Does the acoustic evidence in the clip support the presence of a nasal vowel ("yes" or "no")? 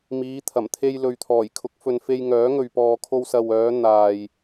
no